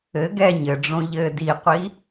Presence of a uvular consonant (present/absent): present